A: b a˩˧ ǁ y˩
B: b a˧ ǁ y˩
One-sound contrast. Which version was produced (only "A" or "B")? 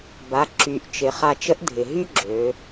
A